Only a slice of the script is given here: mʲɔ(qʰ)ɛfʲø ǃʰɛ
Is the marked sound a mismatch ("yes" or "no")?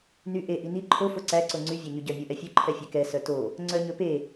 yes